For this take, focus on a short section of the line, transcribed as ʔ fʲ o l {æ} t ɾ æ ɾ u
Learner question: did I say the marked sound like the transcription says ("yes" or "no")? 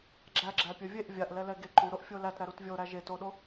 yes